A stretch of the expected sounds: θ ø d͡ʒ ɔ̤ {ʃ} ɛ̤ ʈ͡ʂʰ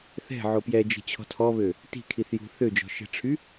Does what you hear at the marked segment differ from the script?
no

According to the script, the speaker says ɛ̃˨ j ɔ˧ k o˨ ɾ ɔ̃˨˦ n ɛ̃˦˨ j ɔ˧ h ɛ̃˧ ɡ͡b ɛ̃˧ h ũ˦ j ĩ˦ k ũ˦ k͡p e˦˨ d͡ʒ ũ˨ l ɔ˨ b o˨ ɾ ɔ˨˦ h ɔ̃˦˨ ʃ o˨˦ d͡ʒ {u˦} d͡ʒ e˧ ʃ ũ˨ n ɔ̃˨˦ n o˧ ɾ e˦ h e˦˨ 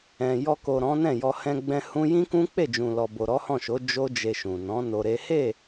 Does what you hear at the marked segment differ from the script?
yes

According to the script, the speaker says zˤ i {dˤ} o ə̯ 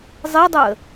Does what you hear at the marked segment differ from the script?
no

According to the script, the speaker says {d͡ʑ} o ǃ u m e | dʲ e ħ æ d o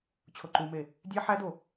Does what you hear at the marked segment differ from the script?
yes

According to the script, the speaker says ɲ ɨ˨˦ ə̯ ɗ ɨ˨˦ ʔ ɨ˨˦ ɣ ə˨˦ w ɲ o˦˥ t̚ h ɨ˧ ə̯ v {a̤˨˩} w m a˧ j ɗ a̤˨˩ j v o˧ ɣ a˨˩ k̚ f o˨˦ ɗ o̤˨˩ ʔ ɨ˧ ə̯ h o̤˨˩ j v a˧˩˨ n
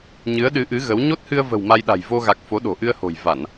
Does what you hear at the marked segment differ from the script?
yes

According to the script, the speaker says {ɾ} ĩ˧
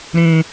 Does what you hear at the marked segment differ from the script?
no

